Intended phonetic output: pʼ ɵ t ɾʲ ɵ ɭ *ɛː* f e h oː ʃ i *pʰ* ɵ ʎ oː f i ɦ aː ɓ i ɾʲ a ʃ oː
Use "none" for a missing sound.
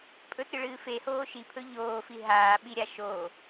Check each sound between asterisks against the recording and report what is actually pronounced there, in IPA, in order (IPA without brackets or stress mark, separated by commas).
ɨː, pʰ